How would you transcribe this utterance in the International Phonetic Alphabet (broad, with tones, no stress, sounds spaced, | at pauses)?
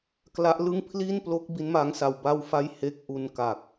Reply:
k l a˦˥ ʔ l ɯ˥˩ ŋ pʰ l i˥˩ n p l o˦˥ k̚ b i˦˥ n m a˦˥ ŋ s a˧ w b a˥˩ w f a˥˩ j h e˦˥ k̚ ʔ u˧ n k a˨˩ k̚